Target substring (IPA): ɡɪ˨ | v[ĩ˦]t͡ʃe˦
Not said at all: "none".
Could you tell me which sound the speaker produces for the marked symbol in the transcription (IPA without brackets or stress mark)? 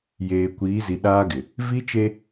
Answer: i˦